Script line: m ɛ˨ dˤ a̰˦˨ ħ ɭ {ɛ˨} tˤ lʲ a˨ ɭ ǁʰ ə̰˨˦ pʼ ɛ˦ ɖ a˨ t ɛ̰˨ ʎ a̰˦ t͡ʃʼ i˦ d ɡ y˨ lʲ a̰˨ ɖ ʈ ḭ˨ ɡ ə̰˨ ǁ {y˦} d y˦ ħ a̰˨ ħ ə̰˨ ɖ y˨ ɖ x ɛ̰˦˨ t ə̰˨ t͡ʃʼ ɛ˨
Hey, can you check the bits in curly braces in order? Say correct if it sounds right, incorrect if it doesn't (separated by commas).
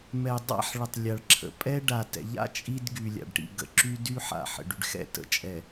incorrect, correct